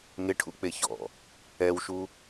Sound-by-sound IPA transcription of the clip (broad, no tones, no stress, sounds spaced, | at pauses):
ŋ ɪ ʈʰ ṵ k͡p e ç ɔ̰ | ɛ w ʃ u